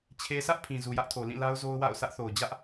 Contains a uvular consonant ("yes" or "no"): no